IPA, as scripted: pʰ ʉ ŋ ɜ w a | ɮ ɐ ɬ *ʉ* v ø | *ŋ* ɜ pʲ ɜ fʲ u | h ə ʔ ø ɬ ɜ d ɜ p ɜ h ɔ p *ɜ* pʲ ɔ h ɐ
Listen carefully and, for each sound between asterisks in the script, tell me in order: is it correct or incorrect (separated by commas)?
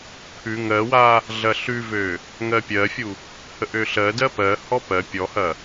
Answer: correct, correct, correct